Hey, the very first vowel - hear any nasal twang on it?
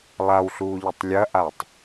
no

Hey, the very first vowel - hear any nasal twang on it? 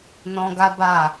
yes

